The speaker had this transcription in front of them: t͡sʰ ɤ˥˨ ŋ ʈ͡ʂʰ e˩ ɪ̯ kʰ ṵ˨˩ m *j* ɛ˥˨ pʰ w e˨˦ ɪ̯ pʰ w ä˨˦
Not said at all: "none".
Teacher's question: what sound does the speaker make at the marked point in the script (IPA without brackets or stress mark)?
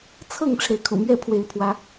ɥ